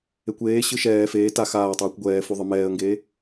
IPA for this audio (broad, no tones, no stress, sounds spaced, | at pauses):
e kʷ eː ɕ ɯ ʃ ɛː f eː t a x aː ə̯ tˤ ɤː kʷ ɡʷ ɛː f u ðˤ ɯ m ɛː ə̯ ŋ ɡ eː